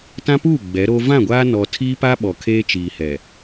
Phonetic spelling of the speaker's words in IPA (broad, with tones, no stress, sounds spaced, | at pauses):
t ã˦ p uː˦˨ ɡ͡b ɛ˨˦ ɾ o˦ v ã˦˨ ɡʷ aː˦ n ɔ˨ tʰ iː˦ p a˦ ɓ ɔ˨ kʰ eː˦ t͡ʃ iː˨ h ɛ˨